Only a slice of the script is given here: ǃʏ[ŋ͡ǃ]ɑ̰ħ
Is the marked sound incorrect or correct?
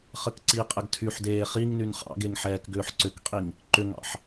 incorrect